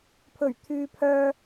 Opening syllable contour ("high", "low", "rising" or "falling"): low